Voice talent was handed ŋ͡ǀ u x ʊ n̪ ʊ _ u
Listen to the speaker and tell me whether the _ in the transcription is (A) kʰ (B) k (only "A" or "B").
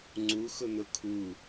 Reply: A